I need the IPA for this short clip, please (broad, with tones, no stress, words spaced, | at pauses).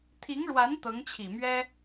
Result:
t̪ʰi˧˥ŋɻwa˧˥n t̪ɤ˧˥ŋt͡ɕʰi˨˩mɥɛ˥